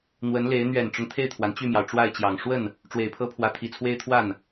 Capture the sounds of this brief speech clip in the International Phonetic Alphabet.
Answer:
n̪ w ə˧˥ n l e˧˥ ɪ̯ n̪ ɥ ɛ˨˩ n ʈ͡ʂ ʊ˦ ŋ t̪ʰ e˥˩ ɪ̯ t̪ʰ w a˩ n t͡ɕ y˥˩ m j ɑ˩ ʊ̯ ʈ͡ʂ w a˥˩ ɪ̯ t͡ɕ j ɑ˨˩ ŋ ʂ w ə˥˩ n | ʈ͡ʂ w e˨˩ ɪ̯ pʰ ɤ˥ pʰ w ä˧˥ t̪ʰ i˨˩ t͡sʰ w e˥ ɪ̯ t̪ʰ w a˥˩ n

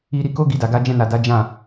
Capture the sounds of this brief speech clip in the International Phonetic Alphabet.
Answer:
i˧ ɾ i˧ k o˦ ɡ i˧ d a˨ ɡ a˧ d͡ʒ ɛ̃˧ n a˨ d a˨˦ d͡ʒ ã˦˨

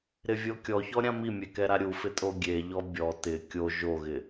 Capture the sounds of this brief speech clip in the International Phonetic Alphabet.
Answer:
ɾ ɪ vʲ o kʲ ɔ ç ɔ ɾʲ ã m i mʲ e k ɛ ɾ a ɾʲ u f ɪ tʼ o ɡʲ e ʎ ɔ bʲ ɔ t ɪ kʲ o ʒ o ɣ ɪ

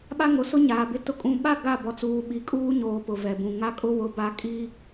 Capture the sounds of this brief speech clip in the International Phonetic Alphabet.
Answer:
ɓ a˦ ŋ o˨ s ʊ˦ ɲ aː˨ b ɪ˦ t ʊ˨ kʼ ũ˨ ɓ a˦˨ ɡ a˦˨ b ɔ˨ t͡s uː˨ ɓ i˨ kʼ uː˦ ɲ oː˨ p ʊ˨ v ɛ˨ b ũ˨ ŋ a˦ kʼ ʊ˦ w ʊ˦ b a˦ kʼ i˦

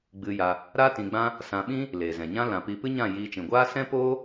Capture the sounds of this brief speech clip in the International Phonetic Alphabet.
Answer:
ɡ͡b ɨ˧ j a˧ | ɾ a˦ t ĩ˧ ɡ͡b ã˦ | s ã˧ ɓ ĩ˦ | l eː˨ z ɛ̃˨ ɲ ã˦ l ã˨ p i˧ p ɨ˦ ɲ ã˦˨ j iː˧ t͡ʃ ĩ˨ ɡʷ aː˦ s ɛ̃˦ p oː˦

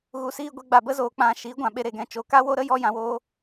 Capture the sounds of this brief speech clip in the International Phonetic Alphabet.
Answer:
ɣ u˧ s iː˦ ɡʷ e˨˦ ɡ͡b a˨ b ə˦ z oː˨ k͡p ã˧ ʃ i˨˦ ɡʷ ã˨ ɓ e˧ ɾ e˨ ɡ ɛ̃˧ t͡ʃ o˨˦ k a˦ w o˦ ɾ ə˦ j ɔ˦ j ã˧ w oː˦

